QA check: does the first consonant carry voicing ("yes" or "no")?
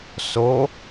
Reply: no